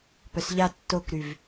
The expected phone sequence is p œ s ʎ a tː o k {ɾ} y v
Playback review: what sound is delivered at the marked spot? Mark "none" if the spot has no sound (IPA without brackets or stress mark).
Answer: ɾ